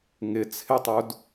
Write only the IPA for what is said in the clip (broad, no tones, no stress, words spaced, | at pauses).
ŋɪ t͡sʰɪtˤud